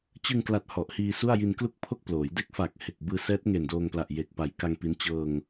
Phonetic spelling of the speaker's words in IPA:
t͡ɕ ɯ˧ ŋ k l a˨˩ t̚ h ɔ˨˩ ʔ h iː˧ s u˥˩ a̯ j i˧ n k l u˥˩ k̚ pʰ o˥˩ k̚ p l oː˩˦ j d e˦˥ k̚ f a˨˩ k̚ h e˨˩ k̚ b ɯː˧ s ɛː˦˥ t̚ ŋ e˨˩ n d oː˧ ŋ p l a˨˩ ʔ j e˨˩ k̚ p a˨˩ j k a˧ ŋ p i˦˥ n t͡ɕ ɤː˧ ŋ

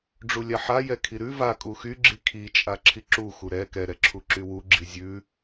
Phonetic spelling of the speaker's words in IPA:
ɖ͡ʐ u lʲ a ħ a j ɛ kʰ i ɾ ʉ v a kʼ u x y ɡ͡ǁ i kʰ i t͡ʃʼ a ǁʰ i ǁ u x u ɾ ɛ k ɛ ɾ ɛ ǁʰ u ǁ y w u ɡ͡ǁ i zʲ ʉ

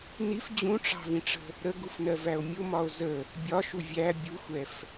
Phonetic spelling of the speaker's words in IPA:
n i f d͡ʑ ũ ʈ͡ʂ ɑ̤ v ĩ ʈ͡ʂ ə̤ | ɾ ə ɡ u f n ɜ v æ o̯ mʲ ʊ m ɒ o̯ z ə | bʲ ɒ ʃ u vʲ æ bʲ u xʷ ɛ f

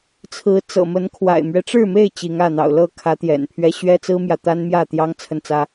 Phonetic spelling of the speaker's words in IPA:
t͡sʰ ɹ̩˨˦ t͡s ɤ̰˨˩ m ə˨˦ n kʰ w a̰˨˩ ɪ̯ m ɥ ɛ˦ ʈ͡ʂ ɻ̩˥˨ m e˥˨ ɪ̯ t͡ɕ i˨˦ ŋ ä˥˨ n̪ ɑ̰˨˩ ʊ̯ l ɤ˥˨ kʰ ä˨˦ t̪ j ɛ̰˨˩ n pʰ ɥ ɛ˦ ɕ ɥ ɛ˦ t͡s ɹ̩˦ m j ä˨ t̪ a˦ n m j ä˥˨ t̪ j ɑ˦ ŋ t͡sʰ ə˦ n t͡s ä˦

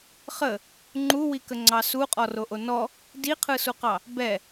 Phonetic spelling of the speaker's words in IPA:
χ ə | ŋ͡ǃ u w i k ə ŋ͡ǀ ɑ s u qʼ ɔ r o ʔ o n ɔ | d i qʰ ɯ s u q ɑ | b ɛ

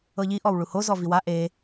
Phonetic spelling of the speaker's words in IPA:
ɤ ʎ i ʔ ɔ w ɭ u h o z ɔ v i w a ʔ e

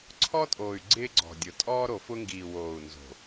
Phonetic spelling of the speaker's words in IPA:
ǀʰ ɔ˦ tʼ oː˨ y̯ ɡ͡ǀ ɪː˦ ɡ͡ǀ ɔ̤˨ dʲ ʊ˨ tʼ ɔː˦ ɾ o˨ f ʊ˦ ŋ ɡ iː˨ w oː˨ u̯ n z o̤˨

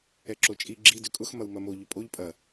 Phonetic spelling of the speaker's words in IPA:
ɛ ǁ o t͡ʃʼ i ɡ͡ǁ i d ʏ kʼ ʊ x m ɐ w m ɐ m o ʎ ʏ pʼ o ʎ pʼ ɐ

